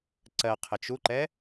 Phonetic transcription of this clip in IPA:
ǀɜqʰɘt͡ʃ uǃɛ

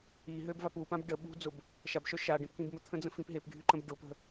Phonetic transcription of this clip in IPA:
i ɦøbvap upãb ɖə ɓṳd͡zʊb | ʃabʃœ ʃaɖẽp kĩbmət̪ʰə̃ d͡zə̃fĩpɦepɡʱy ǃə̃bɖʊpə̤

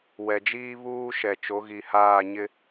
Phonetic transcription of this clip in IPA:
wɛ˨d͡ʒiː˦ βuː˦ ʃɛ˨t͡ʃo˨˦ɣi˨ haː˦˨ɲɪ˦

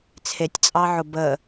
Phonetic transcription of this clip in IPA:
t͡sʰetʲt͡sʼɑʕʊ bə

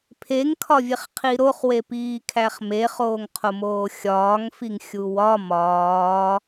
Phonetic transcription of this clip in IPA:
pʰeŋkʰɒvʲeχqʰi ɾoχwepiːkʰæχ meχoːŋqʰomoː xʲɒːŋfiŋxʲu wɒ mɒː

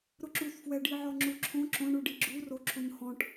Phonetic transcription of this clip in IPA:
ɾʊǁuθfwɛ ɖiʕɔŋ͡ǁuǁʰõ ǁõɳuɖi ɡ͡ǁuro ǁʰuɲhɔ̃ʈ

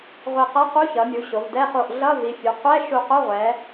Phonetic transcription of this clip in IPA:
ʁʷe˧˩qɛ˧˥˧qu˧˥˧ çʌ˩˧mʲu˩˧ ɕo˩˧vdɛ˧˥˧ χo˧˩ʔ ɮʌ˧˥˧vi˩˧fʲu˩˧ qʷɛ˧˥˧ ʃu˧˩qo˧˥˧ʁʷɛ˩˧

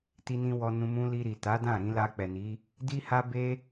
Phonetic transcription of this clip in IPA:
ti˦nĩ˦ wɔ˧nũ˧ mũ˧ li˧ɾi˨ ta˨˦dã˦˨ɾĩ˧ la˧k͡pɛ˨ni˨˦ | di˦ha˦be˦

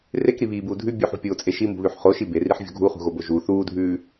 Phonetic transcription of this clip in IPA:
rekɾiβiːbuː dʱʉ bʲuħṳpʲoːt͡sʼe ʃimṳβʉħ χoʃi beriħvʲo̤ ɡʱuχṳɣobo ʒu θuːdʱʉː

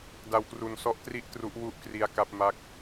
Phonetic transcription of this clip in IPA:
da˧wkru˧nsɔ˦˥ʔtri˥˩ʔ tru˦˥ʔwu˥˩ʔkri˧a̯ka˦˥p̚ ma˦˥k̚

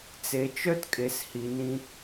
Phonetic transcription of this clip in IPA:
t͡se˨t͡ʃœ˦t kʼe˨shi˨nĩ˧

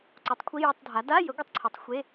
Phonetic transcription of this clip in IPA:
ǀu˩˥tˤkʷʰi˧˥˧jə˧˥˧tˤdʱa˩˥ da˧˥˧jə˩˥ ɡʷi˩˥tˤǀʰi˩˥tˤxʷe˧˥˧

